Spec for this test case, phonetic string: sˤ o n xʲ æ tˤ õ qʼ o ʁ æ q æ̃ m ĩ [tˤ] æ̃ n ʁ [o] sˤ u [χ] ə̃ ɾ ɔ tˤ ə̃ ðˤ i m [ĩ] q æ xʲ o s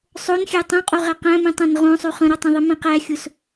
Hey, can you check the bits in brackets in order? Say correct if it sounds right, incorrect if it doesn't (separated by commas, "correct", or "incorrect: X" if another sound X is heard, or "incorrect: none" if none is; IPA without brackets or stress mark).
correct, incorrect: õ, correct, correct